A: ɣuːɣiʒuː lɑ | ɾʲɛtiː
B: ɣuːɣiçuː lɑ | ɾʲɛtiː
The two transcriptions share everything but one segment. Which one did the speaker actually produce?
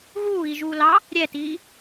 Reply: A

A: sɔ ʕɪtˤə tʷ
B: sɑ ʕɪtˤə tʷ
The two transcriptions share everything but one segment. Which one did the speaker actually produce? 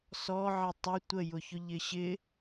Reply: A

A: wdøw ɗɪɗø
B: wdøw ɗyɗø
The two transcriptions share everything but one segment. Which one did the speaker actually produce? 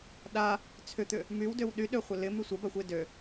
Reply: B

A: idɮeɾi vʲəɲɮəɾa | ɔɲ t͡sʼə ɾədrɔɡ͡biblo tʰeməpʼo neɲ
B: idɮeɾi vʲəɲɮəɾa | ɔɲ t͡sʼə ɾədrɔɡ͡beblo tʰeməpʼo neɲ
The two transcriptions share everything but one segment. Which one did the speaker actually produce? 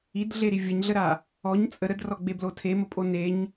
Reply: B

